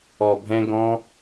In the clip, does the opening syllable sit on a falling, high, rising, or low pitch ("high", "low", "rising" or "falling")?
low